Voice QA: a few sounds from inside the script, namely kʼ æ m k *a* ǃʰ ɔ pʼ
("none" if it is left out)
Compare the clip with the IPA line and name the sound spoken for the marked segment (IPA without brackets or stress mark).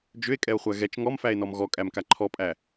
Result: a